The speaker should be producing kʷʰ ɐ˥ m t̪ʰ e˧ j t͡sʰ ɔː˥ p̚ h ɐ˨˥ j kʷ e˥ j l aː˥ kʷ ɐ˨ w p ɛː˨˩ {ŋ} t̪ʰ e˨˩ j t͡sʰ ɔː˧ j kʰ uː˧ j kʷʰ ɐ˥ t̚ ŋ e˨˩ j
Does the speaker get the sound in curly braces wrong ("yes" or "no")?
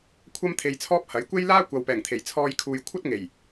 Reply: no